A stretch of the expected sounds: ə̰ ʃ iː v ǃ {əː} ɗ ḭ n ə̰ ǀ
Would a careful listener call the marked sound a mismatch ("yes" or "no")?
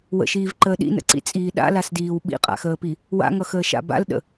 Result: no